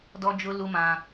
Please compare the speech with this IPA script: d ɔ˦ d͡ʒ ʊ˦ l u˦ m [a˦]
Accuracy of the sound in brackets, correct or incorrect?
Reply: incorrect